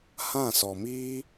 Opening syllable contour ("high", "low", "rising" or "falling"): falling